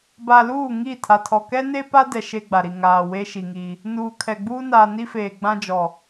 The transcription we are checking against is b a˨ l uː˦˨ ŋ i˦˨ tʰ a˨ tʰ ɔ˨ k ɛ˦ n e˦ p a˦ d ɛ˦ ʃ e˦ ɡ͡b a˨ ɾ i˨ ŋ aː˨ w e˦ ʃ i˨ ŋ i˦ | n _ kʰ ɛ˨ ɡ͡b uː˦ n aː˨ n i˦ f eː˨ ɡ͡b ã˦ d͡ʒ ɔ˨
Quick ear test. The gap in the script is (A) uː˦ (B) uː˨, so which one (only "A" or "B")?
B